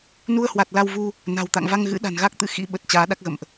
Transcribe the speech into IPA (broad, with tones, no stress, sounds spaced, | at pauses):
n u˧ ə̯ h w a˨˩ t̚ l a˧ w v u˧ | n a̤˨˩ w t̪ a̰˧˨ ŋ v a˧ ŋ ɣ ɨ̰˧˥ ɗ a̤˨˩ n ɣ a˦˥ k̚ t̪ ɨ̰˧˥ x ḭ˧˥ ɓ ə˨˩ t̚ t͡ɕ aː˨˦ ɗ a˦˥ k̚ ɣ ə̰˧˨ m ʔ